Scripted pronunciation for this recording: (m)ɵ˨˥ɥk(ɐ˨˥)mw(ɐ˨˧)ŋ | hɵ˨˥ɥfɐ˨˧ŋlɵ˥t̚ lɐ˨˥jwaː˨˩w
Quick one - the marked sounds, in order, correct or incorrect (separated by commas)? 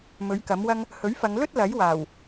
correct, correct, incorrect